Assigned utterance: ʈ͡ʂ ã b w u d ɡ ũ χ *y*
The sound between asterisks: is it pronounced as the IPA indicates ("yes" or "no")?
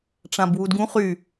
yes